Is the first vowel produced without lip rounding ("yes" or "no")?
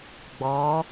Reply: no